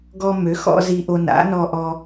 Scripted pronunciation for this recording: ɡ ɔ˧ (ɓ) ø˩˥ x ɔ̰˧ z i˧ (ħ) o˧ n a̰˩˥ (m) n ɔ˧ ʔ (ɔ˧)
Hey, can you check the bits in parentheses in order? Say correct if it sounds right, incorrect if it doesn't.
incorrect: m, incorrect: ʔ, incorrect: none, correct

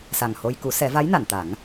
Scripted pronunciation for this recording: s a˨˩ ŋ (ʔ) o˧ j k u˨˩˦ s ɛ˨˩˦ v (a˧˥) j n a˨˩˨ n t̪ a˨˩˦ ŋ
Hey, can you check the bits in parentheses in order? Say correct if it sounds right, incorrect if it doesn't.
incorrect: h, correct

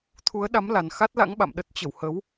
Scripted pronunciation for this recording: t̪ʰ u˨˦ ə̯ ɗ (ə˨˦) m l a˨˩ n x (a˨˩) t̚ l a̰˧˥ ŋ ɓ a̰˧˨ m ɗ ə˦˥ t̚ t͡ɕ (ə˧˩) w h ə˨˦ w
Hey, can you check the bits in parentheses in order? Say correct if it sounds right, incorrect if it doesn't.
incorrect: a˨˦, incorrect: a˦˥, correct

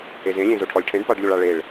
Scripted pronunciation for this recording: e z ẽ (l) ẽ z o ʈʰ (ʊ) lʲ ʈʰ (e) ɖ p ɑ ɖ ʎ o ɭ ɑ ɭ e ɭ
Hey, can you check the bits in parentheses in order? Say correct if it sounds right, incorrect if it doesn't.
incorrect: lʲ, incorrect: ɔ, incorrect: ẽ

